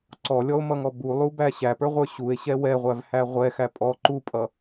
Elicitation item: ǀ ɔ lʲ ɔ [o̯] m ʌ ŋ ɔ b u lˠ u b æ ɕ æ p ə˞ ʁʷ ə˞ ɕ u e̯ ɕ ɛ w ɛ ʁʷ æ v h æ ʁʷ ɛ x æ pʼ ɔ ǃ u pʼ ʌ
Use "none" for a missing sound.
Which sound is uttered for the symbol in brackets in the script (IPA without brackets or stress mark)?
o̯